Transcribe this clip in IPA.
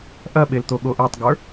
ʔ ɐ ɓ e l t̪ o ɠ o ʔ e tˤ ɡ ə˞

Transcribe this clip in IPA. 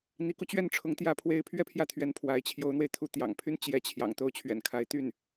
n̪ i˧˥ k u˧ t͡ɕ ɥ ɛ˥˩ n ʈ͡ʂʰ ʊ˧˥ ŋ t̪ j ä˥˩ pʰ w e˥ ɪ̯ pʰ ɥ ɛ˥˧ pʰ j ä˥˩ t̪ʰ ɥ ɛ˧˥ n pʰ w a˧˥ ɪ̯ t͡ɕʰ j o˧˥ ʊ̯ n̪ w e˧ ɪ̯ t̪ʰ u˧˥ t̪ j ɑ̰˨˩ ŋ pʰ y˥ n t͡ɕ j ɛ˧˥ t͡ɕʰ j ɑ̰˨˩ ŋ t̪ o˥˩ ʊ̯ t͡ɕʰ ɥ ɛ̰˨˩ n kʰ a˧˥ ɪ̯ t̪ y˥˩ n

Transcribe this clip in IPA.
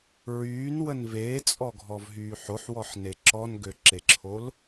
ɹ yː n w ə n v eː t͡sʼ ɔ ɡʱ ɔ v ɦ yː ħ o ħ w ɔ ħ n e ǁ ɔ n ɡ ø ǁ e ǁʰ o l

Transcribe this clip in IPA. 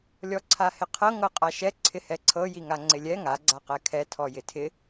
lʲ ɔ ǀʰ a h ɪ qʰ ɤ ŋ ɤ qʼ a ʃ ɛ ǀʰ ɪ h ɛ ǀʰ ɤ j i ŋ a ŋ͡ǀ ɪ lʲ ɛ ŋ a ɡ͡ǀ a q ɛ kʰ ɛ tʰ ɔ j ɪ tʰ ɪ

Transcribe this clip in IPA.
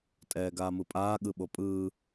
tʼ ɛː ɡ aː m ɯ pʼ aː ɠ ɯ ɓ o pʼ ɯː

